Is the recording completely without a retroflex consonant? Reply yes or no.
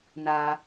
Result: yes